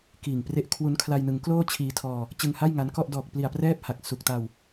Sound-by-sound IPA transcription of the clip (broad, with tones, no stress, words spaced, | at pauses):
kiː˨˩ŋpre˦˥ʔ kʰwu˦˥n kʰla˧jnɯ˩˦ŋkloː˥˩ t͡ɕʰiː˧tʰɔː˧ | t͡ɕɯ˧ŋha˥˩jŋa˦˥nkɔ˥˩ʔ dɔː˨˩k̚pli˨˩a̯prɛː˦˥p̚ ha˨˩k̚ su˨˩k̚ta˧w